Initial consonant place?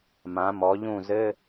labial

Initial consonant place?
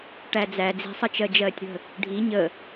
retroflex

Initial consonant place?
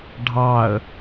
retroflex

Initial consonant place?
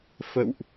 labial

